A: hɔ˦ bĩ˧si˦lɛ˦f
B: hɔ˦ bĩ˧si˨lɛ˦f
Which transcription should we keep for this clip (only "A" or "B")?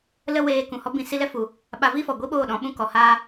A